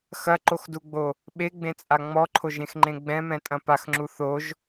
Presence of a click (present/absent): present